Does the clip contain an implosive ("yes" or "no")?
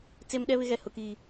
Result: yes